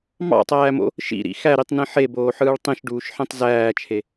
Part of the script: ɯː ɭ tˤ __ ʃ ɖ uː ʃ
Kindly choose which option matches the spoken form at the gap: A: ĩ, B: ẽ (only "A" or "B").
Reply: A